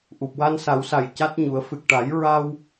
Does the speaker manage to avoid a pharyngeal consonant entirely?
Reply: yes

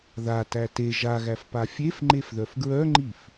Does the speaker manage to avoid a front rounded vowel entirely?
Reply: no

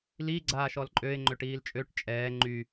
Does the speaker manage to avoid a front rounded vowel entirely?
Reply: no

